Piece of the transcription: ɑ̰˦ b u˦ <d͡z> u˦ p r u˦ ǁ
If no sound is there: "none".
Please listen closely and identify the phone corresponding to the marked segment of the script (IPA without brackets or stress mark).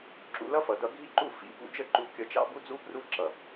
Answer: d͡z